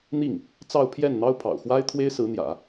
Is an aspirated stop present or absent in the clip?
present